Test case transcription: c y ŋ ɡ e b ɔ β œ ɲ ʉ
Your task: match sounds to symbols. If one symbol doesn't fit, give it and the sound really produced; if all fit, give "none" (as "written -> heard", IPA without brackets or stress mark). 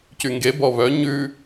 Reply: none